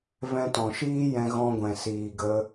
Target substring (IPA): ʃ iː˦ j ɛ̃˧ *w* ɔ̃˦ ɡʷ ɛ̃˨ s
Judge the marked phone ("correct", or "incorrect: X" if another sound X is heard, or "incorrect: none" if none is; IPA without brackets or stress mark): incorrect: ɣ